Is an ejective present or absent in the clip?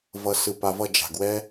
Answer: absent